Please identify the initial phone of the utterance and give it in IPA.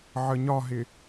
ʕ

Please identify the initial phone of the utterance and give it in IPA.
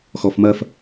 x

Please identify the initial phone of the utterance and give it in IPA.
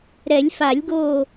ɾ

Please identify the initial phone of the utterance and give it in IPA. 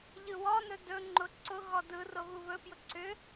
ʎ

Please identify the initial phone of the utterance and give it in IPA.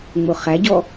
ŋ͡m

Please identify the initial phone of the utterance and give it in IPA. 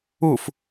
u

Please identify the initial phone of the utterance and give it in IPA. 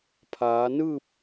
pʰ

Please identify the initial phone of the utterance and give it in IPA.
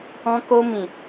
ɔ̃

